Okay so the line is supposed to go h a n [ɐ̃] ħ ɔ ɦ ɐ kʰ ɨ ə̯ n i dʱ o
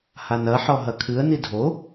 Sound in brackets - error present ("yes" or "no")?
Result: yes